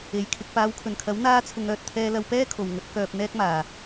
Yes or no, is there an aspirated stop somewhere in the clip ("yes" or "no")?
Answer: yes